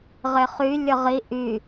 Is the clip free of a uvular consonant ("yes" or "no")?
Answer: no